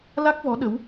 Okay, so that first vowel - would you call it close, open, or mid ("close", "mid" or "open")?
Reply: open